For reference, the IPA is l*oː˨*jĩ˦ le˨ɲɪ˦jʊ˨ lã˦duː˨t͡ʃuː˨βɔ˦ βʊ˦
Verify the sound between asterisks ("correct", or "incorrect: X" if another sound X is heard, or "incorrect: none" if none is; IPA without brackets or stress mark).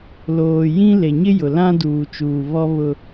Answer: correct